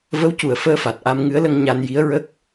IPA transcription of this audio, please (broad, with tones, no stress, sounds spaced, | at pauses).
v ə˧˥ w c u˨˩ ə̯ f əː˧ f a˨˩ t̚ ʔ a˧ m ŋ ɨ˧˥ ə̯ l ə˧ ŋ ɲ a˧ n j i˧˥ ə̯ ɹ ə˦˥ k̚